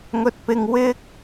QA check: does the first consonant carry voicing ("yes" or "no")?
yes